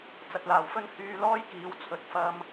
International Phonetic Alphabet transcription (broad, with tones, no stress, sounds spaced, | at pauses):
t͡s ɐ˨ t̚ l aː˨˩ w f ɵ˥ n h yː˧ l ɔː˥ j k iː˨˥ w t͡sʰ ɵ˨˥ t̚ f ɐ˧ m